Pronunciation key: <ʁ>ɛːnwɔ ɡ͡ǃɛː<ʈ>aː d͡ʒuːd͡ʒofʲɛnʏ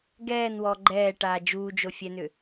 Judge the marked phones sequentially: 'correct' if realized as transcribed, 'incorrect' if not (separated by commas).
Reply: incorrect, correct